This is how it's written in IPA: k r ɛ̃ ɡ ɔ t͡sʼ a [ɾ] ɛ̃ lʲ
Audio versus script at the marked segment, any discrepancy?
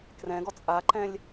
yes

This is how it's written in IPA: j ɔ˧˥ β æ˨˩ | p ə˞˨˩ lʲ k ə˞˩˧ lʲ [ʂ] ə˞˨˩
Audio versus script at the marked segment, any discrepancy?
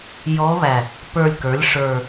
no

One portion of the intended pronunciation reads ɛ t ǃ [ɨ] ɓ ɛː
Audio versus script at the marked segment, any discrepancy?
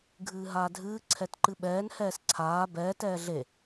no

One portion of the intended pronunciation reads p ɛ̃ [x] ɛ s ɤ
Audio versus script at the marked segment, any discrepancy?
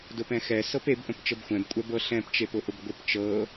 no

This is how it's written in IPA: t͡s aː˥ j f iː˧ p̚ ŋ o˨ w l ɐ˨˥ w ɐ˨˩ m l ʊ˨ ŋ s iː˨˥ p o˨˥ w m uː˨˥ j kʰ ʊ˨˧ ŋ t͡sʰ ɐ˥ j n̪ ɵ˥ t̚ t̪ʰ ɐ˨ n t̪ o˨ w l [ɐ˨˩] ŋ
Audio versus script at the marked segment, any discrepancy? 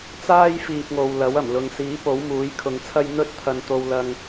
yes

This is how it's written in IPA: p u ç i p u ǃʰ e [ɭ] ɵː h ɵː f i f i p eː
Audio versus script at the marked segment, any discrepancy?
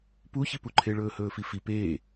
no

